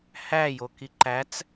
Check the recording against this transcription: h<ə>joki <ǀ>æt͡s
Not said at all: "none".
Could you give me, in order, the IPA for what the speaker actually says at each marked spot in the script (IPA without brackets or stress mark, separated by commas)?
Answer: æ, ǃ